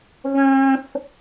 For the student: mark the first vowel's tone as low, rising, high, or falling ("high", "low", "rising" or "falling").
high